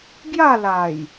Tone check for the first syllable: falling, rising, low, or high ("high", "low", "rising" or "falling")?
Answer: falling